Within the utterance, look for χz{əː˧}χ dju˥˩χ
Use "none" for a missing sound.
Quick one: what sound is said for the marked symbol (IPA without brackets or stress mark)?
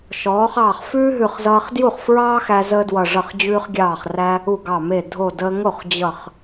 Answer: ʌː˧